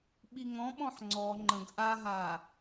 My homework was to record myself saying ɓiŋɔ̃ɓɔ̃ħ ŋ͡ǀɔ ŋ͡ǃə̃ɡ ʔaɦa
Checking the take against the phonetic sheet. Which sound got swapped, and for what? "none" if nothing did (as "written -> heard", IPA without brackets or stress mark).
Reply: none